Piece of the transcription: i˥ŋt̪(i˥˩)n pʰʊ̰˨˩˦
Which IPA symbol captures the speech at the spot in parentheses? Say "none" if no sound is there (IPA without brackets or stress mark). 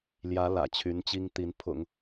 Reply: i˧˥